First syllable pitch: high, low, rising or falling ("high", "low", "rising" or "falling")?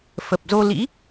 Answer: low